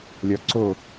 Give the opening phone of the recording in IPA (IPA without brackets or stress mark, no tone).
lʲ